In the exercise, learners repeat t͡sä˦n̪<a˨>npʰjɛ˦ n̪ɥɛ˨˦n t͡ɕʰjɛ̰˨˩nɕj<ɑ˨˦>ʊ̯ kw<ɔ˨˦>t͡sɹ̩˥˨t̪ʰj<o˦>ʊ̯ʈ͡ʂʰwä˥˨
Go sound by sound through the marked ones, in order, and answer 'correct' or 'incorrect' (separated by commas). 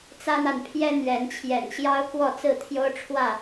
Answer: correct, incorrect, incorrect, correct